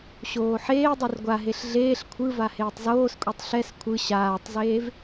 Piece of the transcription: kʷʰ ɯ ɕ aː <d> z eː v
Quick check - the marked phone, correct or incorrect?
incorrect: tˤ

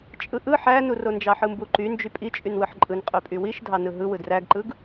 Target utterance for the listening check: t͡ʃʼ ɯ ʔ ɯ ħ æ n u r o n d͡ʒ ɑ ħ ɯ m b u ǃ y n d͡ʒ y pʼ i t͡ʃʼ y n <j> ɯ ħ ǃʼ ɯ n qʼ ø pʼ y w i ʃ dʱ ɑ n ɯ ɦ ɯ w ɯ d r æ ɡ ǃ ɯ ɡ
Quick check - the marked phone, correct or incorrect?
incorrect: w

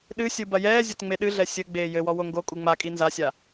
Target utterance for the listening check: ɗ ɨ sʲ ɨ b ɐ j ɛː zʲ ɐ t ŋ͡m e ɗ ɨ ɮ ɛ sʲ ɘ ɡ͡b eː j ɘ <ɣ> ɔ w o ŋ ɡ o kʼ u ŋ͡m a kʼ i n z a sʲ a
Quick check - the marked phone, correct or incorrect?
incorrect: w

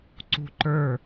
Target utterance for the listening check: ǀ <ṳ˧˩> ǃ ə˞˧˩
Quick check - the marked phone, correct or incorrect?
correct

